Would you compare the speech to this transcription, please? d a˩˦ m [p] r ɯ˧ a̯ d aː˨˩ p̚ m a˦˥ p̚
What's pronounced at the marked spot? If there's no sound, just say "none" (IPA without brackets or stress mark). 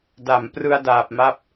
p